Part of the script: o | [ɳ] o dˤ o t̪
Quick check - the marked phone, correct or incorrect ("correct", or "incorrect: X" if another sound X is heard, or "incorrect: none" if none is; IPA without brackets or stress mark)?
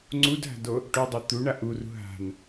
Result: incorrect: ʈ